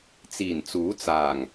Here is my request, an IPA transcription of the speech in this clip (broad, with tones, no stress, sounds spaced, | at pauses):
t͡s iː˨˩ n t͡s uː˨˥ t͡s aː˨˩ ŋ